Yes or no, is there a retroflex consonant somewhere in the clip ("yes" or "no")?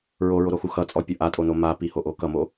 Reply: no